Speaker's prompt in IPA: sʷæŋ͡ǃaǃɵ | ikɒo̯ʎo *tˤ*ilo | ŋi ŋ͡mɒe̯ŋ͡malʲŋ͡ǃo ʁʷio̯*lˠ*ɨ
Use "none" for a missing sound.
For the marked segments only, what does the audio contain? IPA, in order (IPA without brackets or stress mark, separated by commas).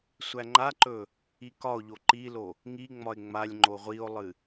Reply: ǃ, lˠ